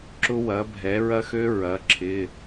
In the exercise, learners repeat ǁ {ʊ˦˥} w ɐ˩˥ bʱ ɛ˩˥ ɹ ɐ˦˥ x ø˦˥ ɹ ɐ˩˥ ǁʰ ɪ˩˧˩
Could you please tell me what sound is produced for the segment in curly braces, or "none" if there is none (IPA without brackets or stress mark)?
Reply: ʊ˦˥